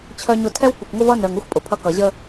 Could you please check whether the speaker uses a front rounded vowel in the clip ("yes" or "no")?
yes